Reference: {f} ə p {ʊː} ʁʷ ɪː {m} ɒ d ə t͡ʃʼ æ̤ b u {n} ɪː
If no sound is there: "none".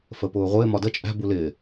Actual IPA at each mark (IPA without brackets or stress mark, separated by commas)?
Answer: f, ʊː, m, l